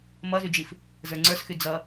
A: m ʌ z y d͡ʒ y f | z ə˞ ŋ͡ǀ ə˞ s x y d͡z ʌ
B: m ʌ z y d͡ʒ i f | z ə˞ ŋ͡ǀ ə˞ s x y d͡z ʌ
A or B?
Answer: B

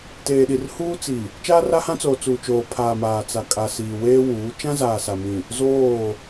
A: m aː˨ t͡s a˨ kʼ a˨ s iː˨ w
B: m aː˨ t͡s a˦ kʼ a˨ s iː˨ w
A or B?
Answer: A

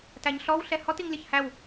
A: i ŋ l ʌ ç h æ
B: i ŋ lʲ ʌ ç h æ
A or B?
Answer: B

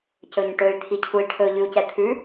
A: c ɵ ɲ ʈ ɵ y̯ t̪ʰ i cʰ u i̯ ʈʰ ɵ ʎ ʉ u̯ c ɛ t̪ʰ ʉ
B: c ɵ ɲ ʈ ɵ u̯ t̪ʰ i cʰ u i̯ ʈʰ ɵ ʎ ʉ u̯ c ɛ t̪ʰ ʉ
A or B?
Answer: A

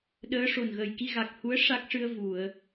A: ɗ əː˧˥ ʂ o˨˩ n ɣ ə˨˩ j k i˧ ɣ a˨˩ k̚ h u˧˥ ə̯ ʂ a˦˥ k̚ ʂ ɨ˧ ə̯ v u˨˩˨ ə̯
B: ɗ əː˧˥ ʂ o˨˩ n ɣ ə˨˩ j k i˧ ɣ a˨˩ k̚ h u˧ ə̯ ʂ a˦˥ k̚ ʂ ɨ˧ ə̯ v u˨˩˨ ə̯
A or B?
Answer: A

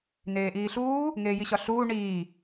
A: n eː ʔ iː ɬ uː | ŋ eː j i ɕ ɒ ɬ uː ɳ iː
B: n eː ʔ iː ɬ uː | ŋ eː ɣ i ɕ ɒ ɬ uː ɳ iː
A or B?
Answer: A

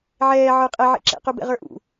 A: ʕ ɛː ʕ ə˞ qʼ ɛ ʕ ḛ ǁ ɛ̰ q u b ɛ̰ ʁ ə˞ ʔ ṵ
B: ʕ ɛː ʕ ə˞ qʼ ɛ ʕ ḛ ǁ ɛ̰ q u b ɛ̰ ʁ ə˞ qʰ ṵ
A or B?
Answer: A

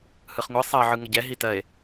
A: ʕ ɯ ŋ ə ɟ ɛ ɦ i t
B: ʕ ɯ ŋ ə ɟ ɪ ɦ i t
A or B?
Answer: A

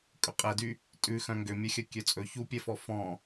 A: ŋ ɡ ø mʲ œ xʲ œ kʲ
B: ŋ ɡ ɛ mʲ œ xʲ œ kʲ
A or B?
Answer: A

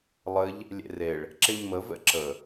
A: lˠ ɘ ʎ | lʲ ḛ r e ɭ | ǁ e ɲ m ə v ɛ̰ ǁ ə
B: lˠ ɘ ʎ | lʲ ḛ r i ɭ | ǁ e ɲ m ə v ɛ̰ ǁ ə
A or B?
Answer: A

